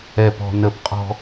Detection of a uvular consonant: present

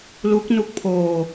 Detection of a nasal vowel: absent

